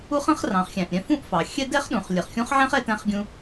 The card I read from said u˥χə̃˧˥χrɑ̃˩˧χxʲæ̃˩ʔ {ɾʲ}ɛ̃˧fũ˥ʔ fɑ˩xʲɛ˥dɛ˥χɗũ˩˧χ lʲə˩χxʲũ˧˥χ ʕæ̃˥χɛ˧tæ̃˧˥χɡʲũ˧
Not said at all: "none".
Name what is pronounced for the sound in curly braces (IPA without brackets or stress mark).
ɾʲ